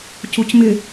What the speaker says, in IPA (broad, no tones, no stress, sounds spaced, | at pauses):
c u c m ɪ